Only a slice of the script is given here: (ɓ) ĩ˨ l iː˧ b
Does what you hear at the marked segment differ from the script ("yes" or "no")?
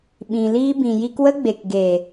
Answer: no